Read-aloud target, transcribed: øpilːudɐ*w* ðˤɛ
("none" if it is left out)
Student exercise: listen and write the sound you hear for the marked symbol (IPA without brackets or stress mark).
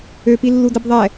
b